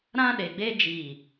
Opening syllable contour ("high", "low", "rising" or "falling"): high